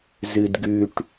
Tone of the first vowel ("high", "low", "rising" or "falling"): low